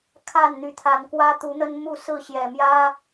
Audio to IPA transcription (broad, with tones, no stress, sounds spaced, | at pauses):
kʰ a˥˨ n n̪ y˨˦ t̪ʰ a˨˦ n k w ä˦ t̪ u˨˦ n̪ ə˦ n m u˥˨ s ɹ̩˥˨ ɕ j ɛ˨˩ m j ä˦